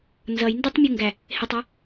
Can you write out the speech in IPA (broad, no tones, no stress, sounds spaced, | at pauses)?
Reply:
n z ʌ j n d ɔ tˤ mʲ u ŋ ɡ æ | h ɪ tˤ ɔ